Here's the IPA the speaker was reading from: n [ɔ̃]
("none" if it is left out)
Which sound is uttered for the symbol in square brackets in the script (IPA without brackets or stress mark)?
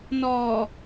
ɔ